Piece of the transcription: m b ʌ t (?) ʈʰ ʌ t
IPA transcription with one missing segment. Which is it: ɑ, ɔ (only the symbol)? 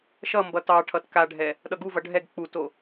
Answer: ɑ